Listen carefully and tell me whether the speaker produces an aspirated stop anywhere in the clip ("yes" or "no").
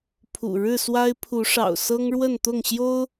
yes